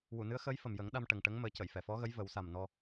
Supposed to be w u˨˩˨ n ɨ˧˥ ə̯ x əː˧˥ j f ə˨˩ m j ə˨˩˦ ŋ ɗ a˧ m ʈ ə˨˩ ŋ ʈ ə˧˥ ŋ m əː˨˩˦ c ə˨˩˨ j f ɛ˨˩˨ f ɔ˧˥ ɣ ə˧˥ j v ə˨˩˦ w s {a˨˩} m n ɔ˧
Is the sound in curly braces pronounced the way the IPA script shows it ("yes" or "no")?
yes